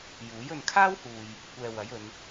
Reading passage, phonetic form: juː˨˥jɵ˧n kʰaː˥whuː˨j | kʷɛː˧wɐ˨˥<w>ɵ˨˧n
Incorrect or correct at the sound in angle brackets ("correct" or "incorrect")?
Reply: incorrect